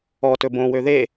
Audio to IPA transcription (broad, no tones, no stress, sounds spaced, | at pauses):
ɔ t ɵ b õ w ø ð e